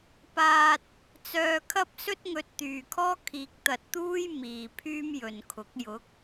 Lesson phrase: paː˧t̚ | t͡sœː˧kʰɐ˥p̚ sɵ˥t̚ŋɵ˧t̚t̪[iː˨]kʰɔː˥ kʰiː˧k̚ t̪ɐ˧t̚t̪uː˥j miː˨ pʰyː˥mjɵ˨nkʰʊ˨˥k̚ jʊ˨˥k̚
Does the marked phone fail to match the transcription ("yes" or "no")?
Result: yes